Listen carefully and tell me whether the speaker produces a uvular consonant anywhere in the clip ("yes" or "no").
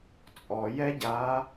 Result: no